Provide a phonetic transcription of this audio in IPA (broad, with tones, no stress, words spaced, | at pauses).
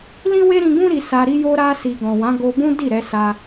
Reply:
lĩ˦we˦ɾĩ˧ɡũ˦ ɾi˧sa˧ ɾi˧jo˧ɾa˧si˨ ɡɔ̃˨wã˨˦ɡo˧bũ˦ di˦˨ɾɛ˧ sa˧